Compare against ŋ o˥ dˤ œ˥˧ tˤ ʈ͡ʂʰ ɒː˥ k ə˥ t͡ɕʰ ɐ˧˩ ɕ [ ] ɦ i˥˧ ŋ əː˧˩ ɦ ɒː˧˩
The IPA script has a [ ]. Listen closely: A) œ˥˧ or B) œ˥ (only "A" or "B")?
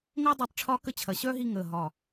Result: B